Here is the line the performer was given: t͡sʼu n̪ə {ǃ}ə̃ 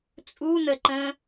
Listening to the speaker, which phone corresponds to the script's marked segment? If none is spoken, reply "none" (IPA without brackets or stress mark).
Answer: ǃ